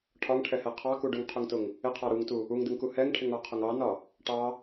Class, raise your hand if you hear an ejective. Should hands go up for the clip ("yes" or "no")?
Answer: no